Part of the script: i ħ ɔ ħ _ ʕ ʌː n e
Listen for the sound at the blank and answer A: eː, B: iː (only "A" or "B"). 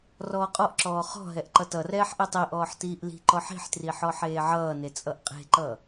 A